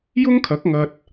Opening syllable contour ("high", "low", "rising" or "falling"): high